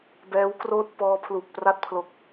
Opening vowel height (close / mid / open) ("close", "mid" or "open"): mid